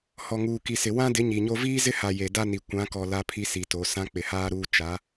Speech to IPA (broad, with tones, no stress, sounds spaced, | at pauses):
h ɔ˨ ŋ uː˨ k i˨ s ɪ˨ w ã˦ d ɪ˨˦ ɲ i˨ ɲ o˦ v iː˦ z ɪ˦ h a˨ j e˨ d a˦ n i˨ kʷ ã˨˦ k ɔ˨ l a˦ pʰ i˦ s i˨ t o˨˦ s ã˦ k͡p ɪ˨ h aː˦ ɾ uː˦ t͡ʃ a˨˦